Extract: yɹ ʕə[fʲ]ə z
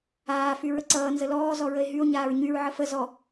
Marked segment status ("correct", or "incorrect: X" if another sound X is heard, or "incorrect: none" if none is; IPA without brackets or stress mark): incorrect: f